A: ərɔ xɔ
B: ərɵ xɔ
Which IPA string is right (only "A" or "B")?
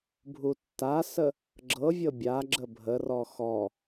A